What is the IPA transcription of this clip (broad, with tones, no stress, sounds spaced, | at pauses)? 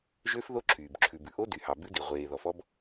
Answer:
ʒ ø˦˥ f ð o˦˥ ǁʰ yː˨ b ǁʰ ʉ˨ b ʉ˨ ʔ o˦˥ d y˨ h ɑ˨ b ʉ˦˥ d i˨ ʁʷ eː˨ ð ɔ˨ f ɔ˦˥ b